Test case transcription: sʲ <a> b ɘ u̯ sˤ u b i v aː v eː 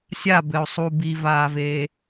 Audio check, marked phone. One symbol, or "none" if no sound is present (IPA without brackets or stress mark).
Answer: a